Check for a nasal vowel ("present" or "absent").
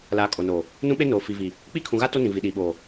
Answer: present